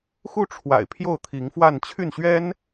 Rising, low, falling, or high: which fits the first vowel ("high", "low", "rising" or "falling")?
falling